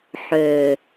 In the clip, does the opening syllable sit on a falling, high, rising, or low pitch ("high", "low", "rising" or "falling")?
low